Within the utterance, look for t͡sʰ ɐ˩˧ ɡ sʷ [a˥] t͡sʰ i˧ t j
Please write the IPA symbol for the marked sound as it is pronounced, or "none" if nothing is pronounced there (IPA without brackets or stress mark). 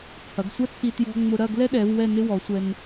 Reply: ɐ˥